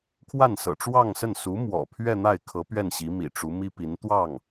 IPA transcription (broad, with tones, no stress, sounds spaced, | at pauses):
kʰ w a˥˩ n s ɤ̰˨˩ ʈ͡ʂ w ɑ˥˧ ŋ s ə˥˩ n s u˧˥ m w ɔ̰˨˩ pʰ ɥ ɛ˥˧ n̪ a˥˩ ɪ̯ kʰ ɤ˧˥ p ɥ ɛ˥˩ n ɕ i˧˥ m ḭ˨˩ ʈ͡ʂ u˧˥ m i˥ p i˧˥ n t̪ w ɑ˥˩ ŋ